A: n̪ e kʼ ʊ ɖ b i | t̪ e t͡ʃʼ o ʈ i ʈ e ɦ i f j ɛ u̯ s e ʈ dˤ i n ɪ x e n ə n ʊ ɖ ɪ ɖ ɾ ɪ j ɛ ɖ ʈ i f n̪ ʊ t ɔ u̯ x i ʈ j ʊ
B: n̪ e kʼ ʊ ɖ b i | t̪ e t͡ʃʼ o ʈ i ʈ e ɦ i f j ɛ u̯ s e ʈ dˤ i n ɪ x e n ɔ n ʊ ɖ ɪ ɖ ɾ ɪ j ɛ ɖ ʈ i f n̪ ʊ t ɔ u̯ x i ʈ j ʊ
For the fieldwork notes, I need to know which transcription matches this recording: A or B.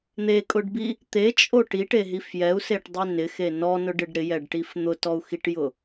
B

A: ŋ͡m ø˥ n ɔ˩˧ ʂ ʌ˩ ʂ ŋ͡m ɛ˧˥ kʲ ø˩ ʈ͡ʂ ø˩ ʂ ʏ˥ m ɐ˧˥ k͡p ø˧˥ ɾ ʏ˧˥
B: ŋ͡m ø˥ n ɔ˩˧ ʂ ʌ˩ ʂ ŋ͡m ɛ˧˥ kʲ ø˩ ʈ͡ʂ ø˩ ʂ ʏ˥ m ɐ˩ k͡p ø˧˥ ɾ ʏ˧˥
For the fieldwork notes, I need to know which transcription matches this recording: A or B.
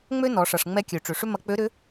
A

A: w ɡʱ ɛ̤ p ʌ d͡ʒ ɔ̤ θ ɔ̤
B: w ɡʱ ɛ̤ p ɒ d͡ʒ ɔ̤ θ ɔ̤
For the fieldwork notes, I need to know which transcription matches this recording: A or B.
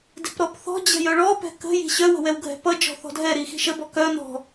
A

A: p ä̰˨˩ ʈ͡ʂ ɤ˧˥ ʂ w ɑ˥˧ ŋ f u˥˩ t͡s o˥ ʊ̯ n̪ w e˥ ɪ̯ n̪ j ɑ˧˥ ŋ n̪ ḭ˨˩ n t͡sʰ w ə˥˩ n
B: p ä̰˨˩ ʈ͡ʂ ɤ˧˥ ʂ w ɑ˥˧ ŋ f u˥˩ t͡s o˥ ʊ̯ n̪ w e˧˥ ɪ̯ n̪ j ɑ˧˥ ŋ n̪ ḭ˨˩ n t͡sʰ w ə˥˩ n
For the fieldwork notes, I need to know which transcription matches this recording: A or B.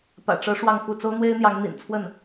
A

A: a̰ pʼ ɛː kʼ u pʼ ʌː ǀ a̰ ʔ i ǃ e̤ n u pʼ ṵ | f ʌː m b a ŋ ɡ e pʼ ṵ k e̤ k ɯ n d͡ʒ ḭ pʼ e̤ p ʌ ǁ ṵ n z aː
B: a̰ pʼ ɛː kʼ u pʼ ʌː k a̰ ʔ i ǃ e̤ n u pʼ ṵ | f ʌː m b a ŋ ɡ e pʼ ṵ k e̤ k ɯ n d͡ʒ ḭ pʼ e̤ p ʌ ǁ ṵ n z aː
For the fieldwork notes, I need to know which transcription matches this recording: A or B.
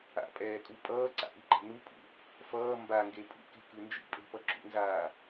A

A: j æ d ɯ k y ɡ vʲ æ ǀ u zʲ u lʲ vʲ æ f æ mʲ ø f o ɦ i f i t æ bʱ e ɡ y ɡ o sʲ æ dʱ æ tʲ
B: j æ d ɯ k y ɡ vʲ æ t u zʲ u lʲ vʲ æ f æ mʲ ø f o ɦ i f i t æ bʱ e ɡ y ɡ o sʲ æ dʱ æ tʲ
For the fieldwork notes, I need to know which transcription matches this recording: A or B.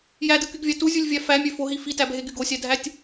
B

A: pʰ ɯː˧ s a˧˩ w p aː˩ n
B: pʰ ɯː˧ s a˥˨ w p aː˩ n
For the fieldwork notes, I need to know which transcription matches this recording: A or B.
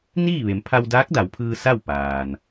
B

